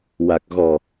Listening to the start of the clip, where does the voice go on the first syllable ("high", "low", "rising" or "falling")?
low